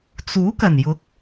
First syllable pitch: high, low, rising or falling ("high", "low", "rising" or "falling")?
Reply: rising